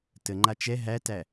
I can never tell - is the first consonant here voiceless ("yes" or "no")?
yes